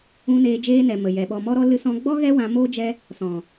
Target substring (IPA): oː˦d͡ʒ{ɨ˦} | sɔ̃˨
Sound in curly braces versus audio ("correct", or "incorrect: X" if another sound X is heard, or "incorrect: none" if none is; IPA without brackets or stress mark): incorrect: ɛ˦